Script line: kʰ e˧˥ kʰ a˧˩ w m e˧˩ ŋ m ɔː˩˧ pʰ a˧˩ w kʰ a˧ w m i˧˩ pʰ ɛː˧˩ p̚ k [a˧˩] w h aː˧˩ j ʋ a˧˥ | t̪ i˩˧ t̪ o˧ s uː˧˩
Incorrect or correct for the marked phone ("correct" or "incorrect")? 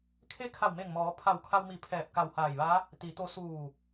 correct